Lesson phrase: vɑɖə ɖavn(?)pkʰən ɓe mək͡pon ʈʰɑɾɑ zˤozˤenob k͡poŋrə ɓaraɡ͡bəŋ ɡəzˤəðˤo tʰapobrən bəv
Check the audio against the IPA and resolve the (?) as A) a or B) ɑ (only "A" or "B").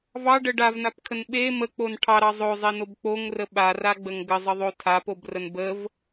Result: A